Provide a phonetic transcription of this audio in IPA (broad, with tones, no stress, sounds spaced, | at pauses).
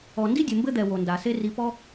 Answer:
ɔ˨ n d i˥ dʲ ɘ˨ m b ɘ˥ d̪ ɛ˨ w o˩ n d a˩ s e˦ r i˨ p ɔ˦